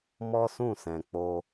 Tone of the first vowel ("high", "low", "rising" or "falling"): high